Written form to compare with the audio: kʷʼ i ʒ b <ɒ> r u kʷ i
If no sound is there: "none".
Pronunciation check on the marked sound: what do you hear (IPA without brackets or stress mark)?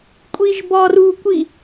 ɒ